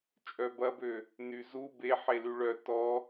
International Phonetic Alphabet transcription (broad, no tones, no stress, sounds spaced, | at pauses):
t͡ʃʼ œ b ɐ b ø | n y z u b e ħ e l y ɭ œ t ɔ